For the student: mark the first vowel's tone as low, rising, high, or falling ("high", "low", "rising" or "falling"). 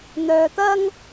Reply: low